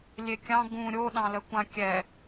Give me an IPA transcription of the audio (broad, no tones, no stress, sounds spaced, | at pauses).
lʲ e kʲ ɑ̃ ɡ ũ ɾʲ o ɗ ɑ̃ l ə kʷ ã kʲ ɛ